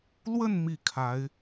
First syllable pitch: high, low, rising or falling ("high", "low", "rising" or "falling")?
falling